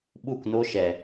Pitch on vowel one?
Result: falling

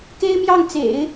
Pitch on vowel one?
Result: high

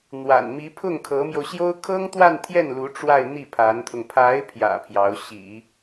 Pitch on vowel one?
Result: low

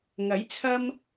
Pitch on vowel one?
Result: rising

